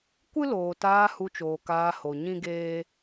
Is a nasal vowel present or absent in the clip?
present